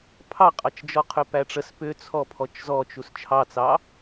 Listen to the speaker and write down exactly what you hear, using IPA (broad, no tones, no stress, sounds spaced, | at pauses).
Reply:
pʰ ɑ qʼ ɑ t͡ʃ d͡ʒ ɔ qʰ ʏ p æ ʈ͡ʂ ə s p ʏ t͡sʰ ɔ pʰ ɔ t͡ʃ z ɔ t͡ʃ u s t͡ʃʰ ɑ t͡s ɑ